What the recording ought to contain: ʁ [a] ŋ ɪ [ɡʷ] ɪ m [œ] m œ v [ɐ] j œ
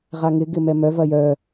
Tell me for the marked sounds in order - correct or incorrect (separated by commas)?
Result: correct, incorrect, incorrect, correct